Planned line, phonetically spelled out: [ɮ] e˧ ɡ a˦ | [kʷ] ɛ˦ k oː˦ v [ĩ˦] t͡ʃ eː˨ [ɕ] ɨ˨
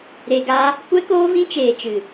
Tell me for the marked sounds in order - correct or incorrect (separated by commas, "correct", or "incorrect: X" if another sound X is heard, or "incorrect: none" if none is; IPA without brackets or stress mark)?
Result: incorrect: ɾ, correct, correct, incorrect: t͡ʃ